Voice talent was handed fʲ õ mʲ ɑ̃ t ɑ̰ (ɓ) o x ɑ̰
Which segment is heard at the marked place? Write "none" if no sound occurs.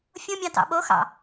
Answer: ɓ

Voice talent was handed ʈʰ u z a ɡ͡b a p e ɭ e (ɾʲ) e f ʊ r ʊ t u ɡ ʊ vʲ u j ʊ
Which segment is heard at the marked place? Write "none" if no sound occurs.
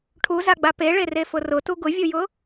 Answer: r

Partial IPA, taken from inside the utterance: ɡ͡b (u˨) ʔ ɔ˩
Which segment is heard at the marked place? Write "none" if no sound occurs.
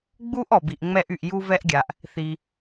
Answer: u˥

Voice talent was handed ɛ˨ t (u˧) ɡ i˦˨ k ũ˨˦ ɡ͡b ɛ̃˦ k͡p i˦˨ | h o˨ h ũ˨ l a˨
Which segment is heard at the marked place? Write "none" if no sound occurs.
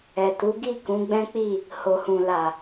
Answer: u˨˦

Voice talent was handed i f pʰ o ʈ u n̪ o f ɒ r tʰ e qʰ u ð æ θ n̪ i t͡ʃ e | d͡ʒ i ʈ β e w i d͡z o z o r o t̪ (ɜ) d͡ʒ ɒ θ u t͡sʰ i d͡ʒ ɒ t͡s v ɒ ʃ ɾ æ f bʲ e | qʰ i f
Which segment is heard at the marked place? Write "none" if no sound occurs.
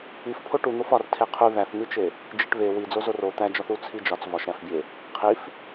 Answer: æ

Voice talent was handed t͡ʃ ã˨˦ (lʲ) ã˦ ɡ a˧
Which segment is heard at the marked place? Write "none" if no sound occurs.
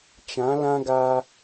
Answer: l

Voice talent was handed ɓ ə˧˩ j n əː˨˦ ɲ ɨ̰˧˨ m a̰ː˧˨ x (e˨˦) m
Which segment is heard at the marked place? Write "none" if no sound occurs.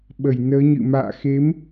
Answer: e˨˦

